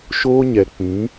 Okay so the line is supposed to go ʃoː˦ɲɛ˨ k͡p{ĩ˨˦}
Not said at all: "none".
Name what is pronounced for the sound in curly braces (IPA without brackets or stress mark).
ĩ˨˦